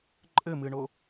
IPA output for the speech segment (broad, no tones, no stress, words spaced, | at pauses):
ǃʼɘmɨɳo